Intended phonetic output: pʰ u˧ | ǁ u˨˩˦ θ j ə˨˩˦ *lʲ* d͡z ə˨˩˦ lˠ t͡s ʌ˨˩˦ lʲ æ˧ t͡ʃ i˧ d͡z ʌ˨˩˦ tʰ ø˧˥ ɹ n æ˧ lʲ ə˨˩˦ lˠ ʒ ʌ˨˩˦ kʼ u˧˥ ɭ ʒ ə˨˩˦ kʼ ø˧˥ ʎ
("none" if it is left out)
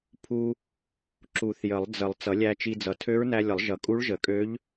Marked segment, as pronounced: lˠ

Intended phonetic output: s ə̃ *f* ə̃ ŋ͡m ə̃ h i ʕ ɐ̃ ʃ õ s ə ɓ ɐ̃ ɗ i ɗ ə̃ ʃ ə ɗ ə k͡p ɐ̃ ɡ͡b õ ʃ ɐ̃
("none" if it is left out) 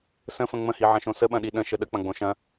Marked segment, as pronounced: f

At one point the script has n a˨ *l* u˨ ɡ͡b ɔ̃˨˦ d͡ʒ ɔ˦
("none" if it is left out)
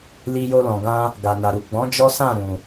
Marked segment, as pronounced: ɾ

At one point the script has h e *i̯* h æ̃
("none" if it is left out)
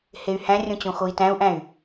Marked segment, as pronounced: y̯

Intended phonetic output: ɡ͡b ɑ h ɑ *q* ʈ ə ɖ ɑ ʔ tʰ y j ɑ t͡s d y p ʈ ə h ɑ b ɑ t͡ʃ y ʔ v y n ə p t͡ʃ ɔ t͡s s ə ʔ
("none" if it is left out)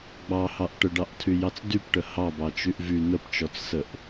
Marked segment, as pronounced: ʔ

